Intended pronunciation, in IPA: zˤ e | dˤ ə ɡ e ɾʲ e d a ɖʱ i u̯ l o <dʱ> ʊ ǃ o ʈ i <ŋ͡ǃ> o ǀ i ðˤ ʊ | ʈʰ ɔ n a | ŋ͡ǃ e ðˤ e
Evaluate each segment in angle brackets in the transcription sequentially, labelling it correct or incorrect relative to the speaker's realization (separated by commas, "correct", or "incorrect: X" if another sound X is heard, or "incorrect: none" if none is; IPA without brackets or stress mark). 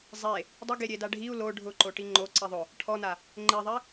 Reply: incorrect: ɖʱ, correct